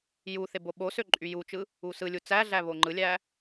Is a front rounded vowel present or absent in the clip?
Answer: present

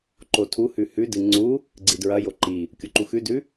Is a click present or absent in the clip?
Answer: present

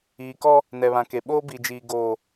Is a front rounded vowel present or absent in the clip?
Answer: absent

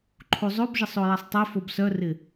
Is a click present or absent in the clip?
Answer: present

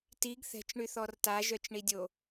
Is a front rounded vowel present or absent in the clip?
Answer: present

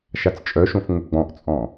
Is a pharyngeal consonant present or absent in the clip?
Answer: absent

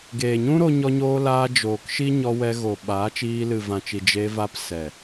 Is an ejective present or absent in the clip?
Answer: absent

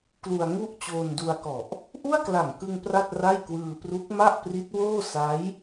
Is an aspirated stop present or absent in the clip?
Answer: absent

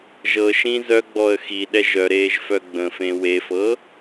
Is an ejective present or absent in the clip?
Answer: absent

